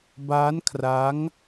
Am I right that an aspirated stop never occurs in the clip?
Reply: no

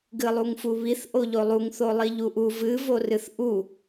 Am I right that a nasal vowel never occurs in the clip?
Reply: yes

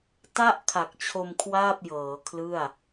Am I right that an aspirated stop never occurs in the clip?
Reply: no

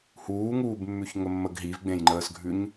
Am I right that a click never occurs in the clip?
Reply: no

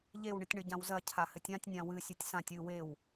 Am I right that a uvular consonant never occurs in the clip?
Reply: yes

